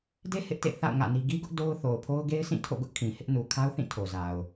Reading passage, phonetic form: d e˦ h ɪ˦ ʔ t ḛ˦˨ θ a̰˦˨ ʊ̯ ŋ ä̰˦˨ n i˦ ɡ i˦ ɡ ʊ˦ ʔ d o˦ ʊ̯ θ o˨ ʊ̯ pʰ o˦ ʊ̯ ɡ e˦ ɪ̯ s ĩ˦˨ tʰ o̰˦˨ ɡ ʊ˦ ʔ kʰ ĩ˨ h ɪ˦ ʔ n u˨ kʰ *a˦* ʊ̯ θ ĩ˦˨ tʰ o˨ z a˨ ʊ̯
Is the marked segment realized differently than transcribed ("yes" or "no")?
no